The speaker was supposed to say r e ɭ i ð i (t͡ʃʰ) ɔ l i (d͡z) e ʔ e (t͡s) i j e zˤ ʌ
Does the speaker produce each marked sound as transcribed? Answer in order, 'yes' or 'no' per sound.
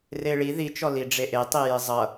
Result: no, no, no

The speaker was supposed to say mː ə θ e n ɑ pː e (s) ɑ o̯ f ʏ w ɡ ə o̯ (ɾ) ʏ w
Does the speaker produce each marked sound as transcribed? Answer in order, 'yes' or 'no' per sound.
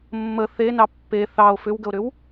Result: no, yes

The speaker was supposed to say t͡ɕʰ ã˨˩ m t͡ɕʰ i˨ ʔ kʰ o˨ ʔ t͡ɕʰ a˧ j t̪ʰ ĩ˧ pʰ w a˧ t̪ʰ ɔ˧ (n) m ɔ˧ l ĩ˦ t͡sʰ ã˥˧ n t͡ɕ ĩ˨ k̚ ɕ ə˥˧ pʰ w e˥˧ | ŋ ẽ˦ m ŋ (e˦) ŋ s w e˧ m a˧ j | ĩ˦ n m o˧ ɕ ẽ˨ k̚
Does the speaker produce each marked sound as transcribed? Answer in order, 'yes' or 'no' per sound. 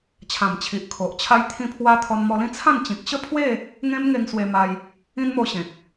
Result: yes, no

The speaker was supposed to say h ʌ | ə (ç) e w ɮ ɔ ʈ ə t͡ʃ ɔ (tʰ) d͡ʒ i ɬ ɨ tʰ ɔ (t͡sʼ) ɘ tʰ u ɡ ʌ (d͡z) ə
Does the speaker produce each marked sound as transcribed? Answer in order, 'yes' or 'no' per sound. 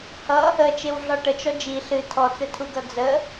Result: no, no, no, yes

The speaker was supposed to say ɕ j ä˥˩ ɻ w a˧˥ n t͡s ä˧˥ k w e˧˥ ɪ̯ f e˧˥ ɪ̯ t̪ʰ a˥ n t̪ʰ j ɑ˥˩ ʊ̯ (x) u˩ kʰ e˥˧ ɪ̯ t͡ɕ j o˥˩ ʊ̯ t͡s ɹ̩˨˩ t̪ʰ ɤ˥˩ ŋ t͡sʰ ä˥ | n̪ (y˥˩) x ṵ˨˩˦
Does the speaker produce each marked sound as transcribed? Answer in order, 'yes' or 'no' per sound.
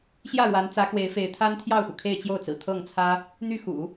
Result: yes, yes

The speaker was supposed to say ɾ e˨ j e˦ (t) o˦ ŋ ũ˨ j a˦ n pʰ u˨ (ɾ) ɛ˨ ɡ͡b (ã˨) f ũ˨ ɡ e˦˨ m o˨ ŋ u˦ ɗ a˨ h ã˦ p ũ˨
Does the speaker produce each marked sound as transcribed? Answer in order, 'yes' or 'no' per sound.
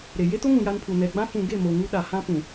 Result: yes, no, no

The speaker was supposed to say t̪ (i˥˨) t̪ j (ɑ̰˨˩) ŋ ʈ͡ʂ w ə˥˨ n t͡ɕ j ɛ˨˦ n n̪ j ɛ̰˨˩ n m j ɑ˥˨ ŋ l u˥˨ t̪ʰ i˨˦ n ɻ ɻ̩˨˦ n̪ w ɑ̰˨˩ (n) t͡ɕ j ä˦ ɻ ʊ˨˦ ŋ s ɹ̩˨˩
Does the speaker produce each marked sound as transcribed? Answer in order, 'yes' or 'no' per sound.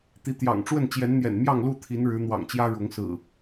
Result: no, yes, no

